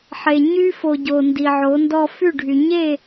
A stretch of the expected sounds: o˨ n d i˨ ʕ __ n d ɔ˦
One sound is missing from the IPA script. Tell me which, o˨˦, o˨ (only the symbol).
o˨˦